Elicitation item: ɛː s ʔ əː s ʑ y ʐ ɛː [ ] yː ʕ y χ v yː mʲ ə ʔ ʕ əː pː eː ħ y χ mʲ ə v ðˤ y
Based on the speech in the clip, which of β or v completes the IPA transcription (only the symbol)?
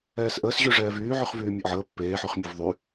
v